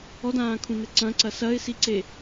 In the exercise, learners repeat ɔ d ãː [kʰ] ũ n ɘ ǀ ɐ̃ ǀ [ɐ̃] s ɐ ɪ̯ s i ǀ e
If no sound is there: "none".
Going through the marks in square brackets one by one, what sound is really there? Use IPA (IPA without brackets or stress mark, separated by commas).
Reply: kʰ, ɐ